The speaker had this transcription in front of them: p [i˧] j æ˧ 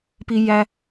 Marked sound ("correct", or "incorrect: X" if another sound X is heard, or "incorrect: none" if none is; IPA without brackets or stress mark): correct